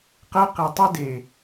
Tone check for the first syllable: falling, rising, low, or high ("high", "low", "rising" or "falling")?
high